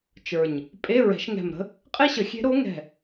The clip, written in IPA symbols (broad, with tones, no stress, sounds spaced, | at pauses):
t͡ʃ ə˞˧˩ ɲ | pʼ e˧˥˧ ɹ ɛ̤˨˩˦ ʃ ŋ ɛ̤˧˩ m ɾ ə̤˥ | qʼ e˥ ɕ ə˨˩˦ xʲ e̤˧˥ ɾ o˧˥ ŋ ɛ̤˧˩